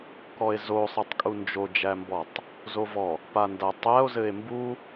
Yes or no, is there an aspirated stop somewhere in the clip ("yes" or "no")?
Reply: no